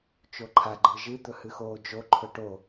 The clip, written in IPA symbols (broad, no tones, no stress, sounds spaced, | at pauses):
t͡ʃ o ǃʰ a ɡ͡ǃ ɨ ʒ ɨ d̪ ɵ h ɨ x oː d͡ʒ o ǃʰ ɵ ʈ o